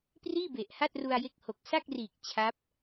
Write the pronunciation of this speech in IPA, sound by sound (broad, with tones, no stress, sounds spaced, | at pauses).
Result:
p r iː˥˩ b e˨˩ ʔ h a˥˩ t̚ r u˧ a̯ j e˦˥ k̚ h o˨˩ k̚ s a˥˩ k̚ r iː˨˩ k̚ t͡ɕʰ a˦˥ p̚